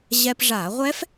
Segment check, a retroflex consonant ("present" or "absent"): present